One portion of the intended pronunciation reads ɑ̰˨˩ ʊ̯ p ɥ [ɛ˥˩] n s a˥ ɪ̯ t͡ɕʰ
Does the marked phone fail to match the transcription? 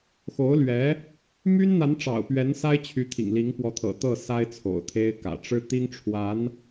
yes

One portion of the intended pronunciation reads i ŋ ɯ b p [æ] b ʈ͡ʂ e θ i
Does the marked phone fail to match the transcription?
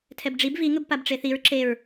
yes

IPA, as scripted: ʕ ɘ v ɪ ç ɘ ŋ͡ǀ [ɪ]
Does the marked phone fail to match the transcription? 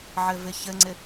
no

